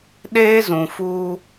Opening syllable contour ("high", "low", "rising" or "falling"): high